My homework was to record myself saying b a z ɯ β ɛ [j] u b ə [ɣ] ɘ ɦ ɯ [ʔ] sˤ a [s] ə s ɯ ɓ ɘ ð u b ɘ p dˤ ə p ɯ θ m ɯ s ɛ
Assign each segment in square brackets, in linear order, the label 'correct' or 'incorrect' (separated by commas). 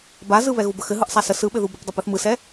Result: incorrect, incorrect, correct, correct